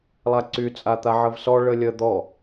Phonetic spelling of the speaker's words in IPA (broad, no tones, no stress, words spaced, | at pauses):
lˠaǀy t͡sʼat̪aʕəvsɔ ɭəlʲə d̪ɔ